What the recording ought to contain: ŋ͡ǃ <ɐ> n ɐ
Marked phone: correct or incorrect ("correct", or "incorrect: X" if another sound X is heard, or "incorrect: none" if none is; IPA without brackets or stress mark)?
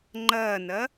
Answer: correct